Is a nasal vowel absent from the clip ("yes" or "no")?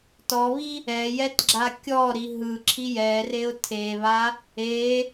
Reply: yes